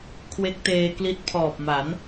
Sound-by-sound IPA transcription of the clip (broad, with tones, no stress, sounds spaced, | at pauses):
kʰ w e˦˥ k̚ t eː˧ k l i˦˥ t̚ pʰ ɔː˨˩ p̚ m a˩˦ n